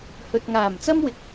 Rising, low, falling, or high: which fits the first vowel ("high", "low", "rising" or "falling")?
low